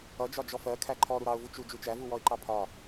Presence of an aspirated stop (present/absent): present